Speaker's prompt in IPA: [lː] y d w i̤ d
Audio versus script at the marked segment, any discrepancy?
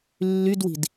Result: no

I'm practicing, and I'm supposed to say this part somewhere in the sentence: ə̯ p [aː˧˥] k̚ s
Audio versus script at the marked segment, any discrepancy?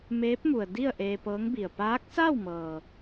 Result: no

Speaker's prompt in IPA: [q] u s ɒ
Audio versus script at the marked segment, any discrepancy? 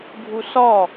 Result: yes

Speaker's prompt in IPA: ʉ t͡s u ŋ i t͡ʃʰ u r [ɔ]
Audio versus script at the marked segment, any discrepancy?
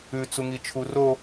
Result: yes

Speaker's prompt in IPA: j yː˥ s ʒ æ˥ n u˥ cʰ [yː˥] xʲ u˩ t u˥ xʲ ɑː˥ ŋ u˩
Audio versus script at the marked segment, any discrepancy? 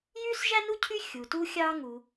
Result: yes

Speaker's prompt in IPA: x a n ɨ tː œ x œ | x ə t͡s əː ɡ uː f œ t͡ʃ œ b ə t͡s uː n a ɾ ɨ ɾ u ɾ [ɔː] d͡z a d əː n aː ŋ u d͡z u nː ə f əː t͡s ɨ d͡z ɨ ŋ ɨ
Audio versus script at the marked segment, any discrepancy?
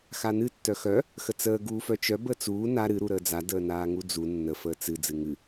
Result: yes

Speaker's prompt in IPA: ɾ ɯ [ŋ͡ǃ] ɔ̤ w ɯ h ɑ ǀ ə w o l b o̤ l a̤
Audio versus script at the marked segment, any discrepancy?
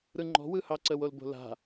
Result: no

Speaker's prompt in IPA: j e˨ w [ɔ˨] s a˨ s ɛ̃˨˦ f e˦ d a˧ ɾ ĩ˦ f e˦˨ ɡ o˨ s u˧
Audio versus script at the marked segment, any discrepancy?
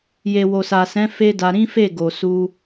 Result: yes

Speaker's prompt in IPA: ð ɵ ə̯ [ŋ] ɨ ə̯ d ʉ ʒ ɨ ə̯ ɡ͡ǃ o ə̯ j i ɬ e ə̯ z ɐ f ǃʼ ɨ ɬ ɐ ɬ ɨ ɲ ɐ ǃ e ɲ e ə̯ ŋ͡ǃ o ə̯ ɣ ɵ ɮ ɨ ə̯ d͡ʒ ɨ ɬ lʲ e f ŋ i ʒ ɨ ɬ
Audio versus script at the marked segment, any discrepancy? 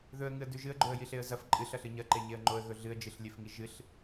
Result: no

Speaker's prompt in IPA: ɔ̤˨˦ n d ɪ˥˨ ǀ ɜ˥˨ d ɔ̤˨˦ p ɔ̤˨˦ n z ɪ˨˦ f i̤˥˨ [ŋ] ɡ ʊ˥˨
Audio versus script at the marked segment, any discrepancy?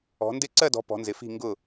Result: no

